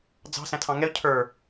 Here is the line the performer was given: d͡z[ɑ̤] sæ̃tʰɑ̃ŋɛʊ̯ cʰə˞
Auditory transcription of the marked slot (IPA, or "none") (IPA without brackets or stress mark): ɑ̤